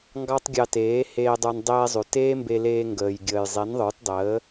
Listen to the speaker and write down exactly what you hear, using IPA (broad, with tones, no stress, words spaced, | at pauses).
ŋɡɑ˦tˤɡʲɑ˧teː˨˦ heː˧dˤə˞˧n dˤeː˧zˤʉ˨ teː˦mbe˧leː˧ ŋɡəː˨jɡʲəː˨j zˤe˨˦nðˤə˞˨˦tdˤəː˨˦